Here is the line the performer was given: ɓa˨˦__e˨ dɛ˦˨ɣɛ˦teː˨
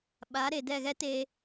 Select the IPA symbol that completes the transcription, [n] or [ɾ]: ɾ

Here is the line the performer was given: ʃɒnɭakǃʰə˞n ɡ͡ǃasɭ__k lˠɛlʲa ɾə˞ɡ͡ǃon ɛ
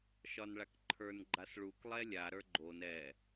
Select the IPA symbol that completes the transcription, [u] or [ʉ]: u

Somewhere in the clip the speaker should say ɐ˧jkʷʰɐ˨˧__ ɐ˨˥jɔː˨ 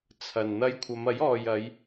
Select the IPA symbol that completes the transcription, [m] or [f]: m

